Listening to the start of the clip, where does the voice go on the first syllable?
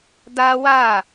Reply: high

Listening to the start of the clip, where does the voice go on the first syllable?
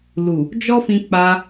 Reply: low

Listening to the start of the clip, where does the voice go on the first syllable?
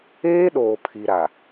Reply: high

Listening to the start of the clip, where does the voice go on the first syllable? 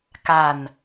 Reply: falling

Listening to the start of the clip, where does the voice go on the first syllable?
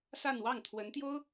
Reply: falling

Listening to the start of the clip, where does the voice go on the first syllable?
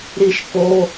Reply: falling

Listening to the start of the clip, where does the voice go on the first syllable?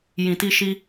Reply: low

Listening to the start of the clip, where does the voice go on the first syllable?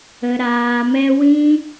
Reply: low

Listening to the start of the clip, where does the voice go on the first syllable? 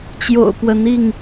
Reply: low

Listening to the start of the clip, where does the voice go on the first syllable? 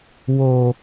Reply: low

